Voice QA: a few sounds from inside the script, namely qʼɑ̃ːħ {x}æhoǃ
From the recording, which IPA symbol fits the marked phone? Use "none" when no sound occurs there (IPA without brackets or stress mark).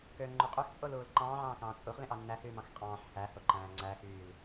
h